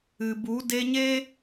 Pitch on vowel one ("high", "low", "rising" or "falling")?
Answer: low